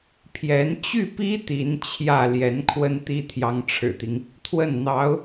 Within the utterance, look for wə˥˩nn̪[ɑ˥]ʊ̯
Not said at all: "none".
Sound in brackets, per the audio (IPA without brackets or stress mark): ɑ˧˥